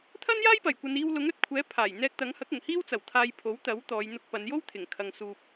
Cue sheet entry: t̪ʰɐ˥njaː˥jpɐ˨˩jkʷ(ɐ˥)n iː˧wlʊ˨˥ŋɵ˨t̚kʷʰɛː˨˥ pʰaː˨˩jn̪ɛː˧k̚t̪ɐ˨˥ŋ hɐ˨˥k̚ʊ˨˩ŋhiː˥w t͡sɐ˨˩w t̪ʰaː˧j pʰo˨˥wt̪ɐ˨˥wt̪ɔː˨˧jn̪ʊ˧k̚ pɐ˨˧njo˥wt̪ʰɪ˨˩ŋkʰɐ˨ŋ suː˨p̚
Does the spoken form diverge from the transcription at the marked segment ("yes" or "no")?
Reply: yes